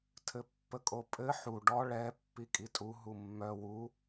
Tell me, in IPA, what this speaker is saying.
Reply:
tʰɘpːəkʼopʼɘ ħu ɖɔ ɭɛ pːikʼitʼu ɦumːœ wu

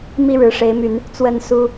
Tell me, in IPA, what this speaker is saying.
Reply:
mi˥˨ɻɻ̩˨˦ʂe˨˦ɪ̯my˨˦n | t͡swə˥˨n su˦

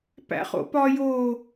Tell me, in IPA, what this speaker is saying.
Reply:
pæ̰χo̰pɒ jo

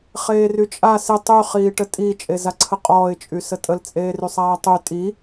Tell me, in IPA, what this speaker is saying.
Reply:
χeːryt͡ʃʼa sɪ tˤy χiːʈətʼi t͡ʃʼezaǀʰəqʼɔːɪ̯ t͡ʃʼysətʼəl t͡sʼeːrysˤaːtˤy tʼi

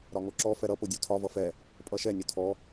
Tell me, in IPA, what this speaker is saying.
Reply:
ɾɒŋoǁɔ fɛɾʌ podʲotʰɒ vʌfɛ | pʼʌʃɛ nʲotʰɔ

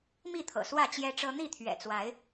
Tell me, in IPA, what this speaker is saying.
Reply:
mi˥˨t̪ʰɤ̰˨˩ swä˥˨t͡ɕjɛ˦ʈ͡ʂɤ˦ n̪i˥˨t̪ʰɥɛ̰˨˩t͡swa˨˦ɪ̯

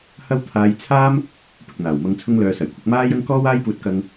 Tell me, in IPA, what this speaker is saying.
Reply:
hɐ˥wt̪ʰaː˧j t͡sʰaː˥m | pɪ˨k̚n̪aː˨˩wmɐ˧ŋ t͡sʰʊ˧ŋ lœː˨sɐ˨˩jkʷʰɐ˧k̚ maː˥jɐ˥ŋ kɔː˥waː˥jpuː˧t̚kɐ˧ŋ

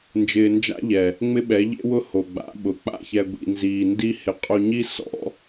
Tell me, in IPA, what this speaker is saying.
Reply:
nd͡ʒɪː˧nd͡ʒa̰˦ʎɛ˨ | ŋ͡mɪ˦ɓɛ˨˦ʎḛ˦wʊ˦ ho˨ɡ͡ba̰˨˦ɓʊ˨˦ k͡pa̰˦˨çɛ˧ ɡʷḭ˧nziː˧ ndi˦ hɪ˨ qʼo˧ɲi˦ sɔ̰˨˦

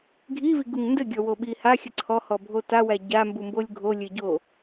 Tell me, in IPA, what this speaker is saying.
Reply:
ɡʱiviɡuŋ ndɘɡʲɔwoɓi haxʲə ǀʰɔhɔbʱo tawæ ɟambumbolʲ ɡʱo lʲɘɟo

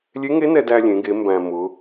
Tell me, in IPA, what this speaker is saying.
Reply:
lʲe˧˥ŋe˧˥ nɛ˧dæ˧lʲẽ˩˧ɡe˩˧ mbæ̃˩ mʊ˩˧

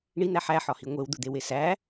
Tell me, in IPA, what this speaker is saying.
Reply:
ɳin̪æ ħæħɒhi ŋʷewd̪ud̪ewe sæ

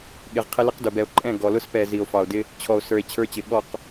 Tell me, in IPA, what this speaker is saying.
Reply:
ɠɪ˨ʁqʰɪ˦ lɪ˦qdʊ˨ bɛ˨o̯ǃʼɛ̃˦˨ ɡɔ˨lʊ˦spɛ˨ zi˨o̯fɑ˨o̯dɪ˦ | t͡ɕʰɔ˨o̯sə˞˨e̯ t͡ɕʰə˞˦t͡ɕɪ˨ ɠɔ˦˨q

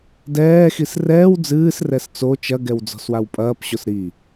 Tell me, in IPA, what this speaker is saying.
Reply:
dɛːxis rɛːw d͡zɨːsrɛs t͡so t͡ʃɐɡɛw d͡zɔ̤swawpʼɐːpɕos ɾi

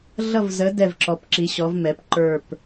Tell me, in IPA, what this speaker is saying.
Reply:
ɮʌ˧˩vzə˩˧ dɛ˧˩v ǁɔ˩˧pǁi˩˧ɕɔ˩˧vmɛ˩˧p ǃə˞˧˩p

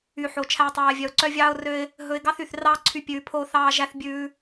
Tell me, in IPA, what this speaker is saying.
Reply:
y˨ħo˨ t͡ʃʰæ˦ɪ̯tˤoː˧ɪ̯vʲœ˧ʊ̯ ǀœ˦vʲɑː˦ʊ̯rø˦ɪ̯ | ɦɵ˧ɪ̯ɡɑ˦θy˨θ rɑː˦ ǀʰy˦pʲʉː˧pʰoː˦ θɑː˦ʒæ˦θbʲʉː˦

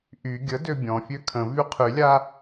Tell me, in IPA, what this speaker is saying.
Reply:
ʔy ɡʲə døbʲɔ̃fʲø kʰə̃ vyqʰylʲa

